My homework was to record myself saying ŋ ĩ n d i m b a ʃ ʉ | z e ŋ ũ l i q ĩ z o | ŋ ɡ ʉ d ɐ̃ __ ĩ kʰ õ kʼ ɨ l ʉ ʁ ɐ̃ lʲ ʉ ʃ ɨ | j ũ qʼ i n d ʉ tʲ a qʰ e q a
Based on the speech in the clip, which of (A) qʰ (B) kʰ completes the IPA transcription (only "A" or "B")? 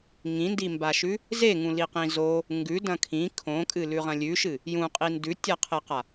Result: B